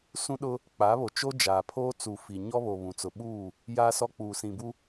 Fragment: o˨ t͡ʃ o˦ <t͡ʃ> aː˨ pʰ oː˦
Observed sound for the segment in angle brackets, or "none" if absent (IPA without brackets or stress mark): d͡ʒ